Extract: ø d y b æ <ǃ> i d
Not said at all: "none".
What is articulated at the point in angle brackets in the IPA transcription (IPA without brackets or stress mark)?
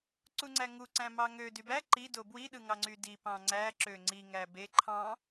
ǃ